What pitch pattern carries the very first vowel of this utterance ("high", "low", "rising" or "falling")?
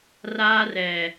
high